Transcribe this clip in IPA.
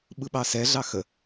ɓ ɯ ɓ ɑ s ɛ ɮ ɑ x ə

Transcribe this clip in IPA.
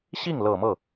ɕ i˥˩ ŋ l ɤ˨˩ m ɤ˥˩

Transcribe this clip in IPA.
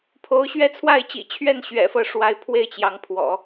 pʰ o˧˥ ʊ̯ ɕ ɥ ɛ˥ t͡sʰ w a˥˩ ɪ̯ t͡ɕ ḭ˨˩ t͡ɕʰ ɥ ɛ˥˩ n ɕ ɥ ɛ̰˨˩ f ɤ˦ ʂ w a˧˥ ɪ̯ pʰ w e˥˩ ɪ̯ t͡ɕ j ɑ˧˥ ŋ pʰ w ɔ̰˨˩˦

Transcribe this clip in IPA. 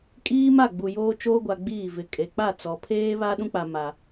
kʼ iː˦ m a˦˨ ɡ͡b u˨ j oː˦ t͡ʃ oː˦ ɡʷ a˨ ɡ͡b iː˦˨ v ɪ˨ kʼ e˨ k͡p a˦˨ t͡s ɔ˨ pʰ eː˦ β a˦ ɗ ũ˦ k͡p a˨ m a˨

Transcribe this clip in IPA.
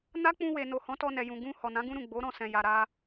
n a˦ k͡p ũ˧ w e˨ n o˨ h ɔ̃˨˦ t ɔ˧ n ɛ˨ j ũ˨ ɡ ũ˧ h ɔ˨ n ã˨˦ ɡ ũ˦ ɾ ũ˦˨ ɡ͡b o˨˦ ɾ ɔ̃˧ s ɛ̃˨ j a˨ ɾ a˧

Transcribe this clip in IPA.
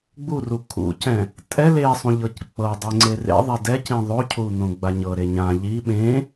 ɡ͡b u r u kʰ ṵ c ɛ̃ | tʼ ɛ l e sˤ ũ ʎ ɤ c k͡p ɤ dˤ e ŋ͡ǀ e r ḛ ðˤ ɛ d ɛ c ĩ ðˤ o cʰ u n õ ɡ͡b a ɲ ɤ ɾ e ɲ ã ʎ i ɓ ẽ

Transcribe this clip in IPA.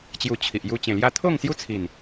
t͡ɕ j u˧ t͡ɕʰ i˨ ʔ j u˧ t͡ɕ ẽ˨˩ l j a˧ t̪ʰ o˥˧ ŋ s j u˦ t͡sʰ i˨˩ n

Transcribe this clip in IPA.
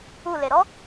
u l e ɾ ɔ

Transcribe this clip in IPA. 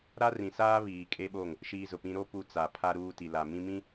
ɾ a˦ r ĩ˨ s aː˦ β iː˨ kʼ e˦ ɓ o˦˨ ŋ | ʃ iː˦ z ʊ˨ p ĩ˦ ɾ o˦ p u˦ t͡s a˨ pʰ a˦ ɾ uː˦ t i˨ l a˨ m ĩ˦ m ĩ˦

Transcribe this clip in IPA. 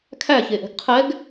kʰ æ ç e ʔ ɛ̤ ɡ qʰ ɛ ɡ

